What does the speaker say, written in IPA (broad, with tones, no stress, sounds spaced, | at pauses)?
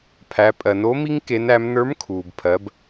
pʰ æ˩˧ pʼ ɜ˩ n o˧˥ m i˥ ŋ k e˧˥ n æ˧˥ m n ə˞˧˥ m kʰ uː˩ b pʰ ɜ˩˧ b